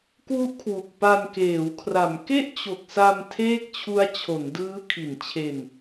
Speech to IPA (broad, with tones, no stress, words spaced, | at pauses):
kwu˦˥ʔkʰwu˨˩k̚ pa˧nkeː˩˦wkʰra˩˦m ke˥˩ʔt͡ɕo˨˩k̚sa˧m tʰeː˥˩k̚t͡ɕʰu˦˥a̯ t͡ɕʰo˩˦ndɯː˦˥ kʰi˨˩nt͡ɕʰe˧n